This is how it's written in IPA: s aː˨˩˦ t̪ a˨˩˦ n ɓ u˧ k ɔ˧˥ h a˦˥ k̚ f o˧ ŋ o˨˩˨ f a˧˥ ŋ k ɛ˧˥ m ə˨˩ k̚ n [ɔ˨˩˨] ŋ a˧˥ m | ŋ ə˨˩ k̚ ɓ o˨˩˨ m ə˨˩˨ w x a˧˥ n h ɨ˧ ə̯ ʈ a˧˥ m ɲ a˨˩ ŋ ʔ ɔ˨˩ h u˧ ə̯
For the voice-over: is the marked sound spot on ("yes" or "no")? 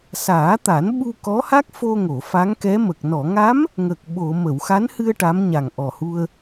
yes